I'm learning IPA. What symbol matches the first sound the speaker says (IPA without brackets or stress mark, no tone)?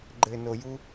ɡ͡ǃ